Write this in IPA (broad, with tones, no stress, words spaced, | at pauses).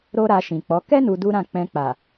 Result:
ɾo˦ɾa˧ʃĩ˨k͡pɔ˨˦ kɛ˦ nu˧du˦ɾã˦˨ k͡pɛ̃˧k͡pa˨